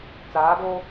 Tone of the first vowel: rising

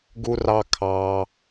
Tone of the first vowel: high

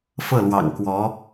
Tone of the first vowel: falling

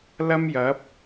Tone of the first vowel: high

